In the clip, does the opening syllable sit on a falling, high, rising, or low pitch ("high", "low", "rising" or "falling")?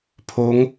rising